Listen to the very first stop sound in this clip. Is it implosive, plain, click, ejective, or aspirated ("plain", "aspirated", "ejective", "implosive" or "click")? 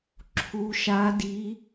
click